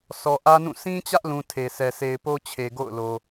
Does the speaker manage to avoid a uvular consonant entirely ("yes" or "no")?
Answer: yes